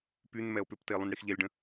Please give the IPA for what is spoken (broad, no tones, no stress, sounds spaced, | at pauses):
p y n m ɛ o̯ p ʏ p t e lˠ ũ n ɽ i x ʎ ɛ lʲ ɖ ə̃